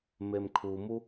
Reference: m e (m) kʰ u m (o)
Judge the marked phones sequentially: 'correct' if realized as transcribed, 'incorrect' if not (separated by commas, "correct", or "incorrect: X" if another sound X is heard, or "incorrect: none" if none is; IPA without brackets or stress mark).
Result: correct, incorrect: u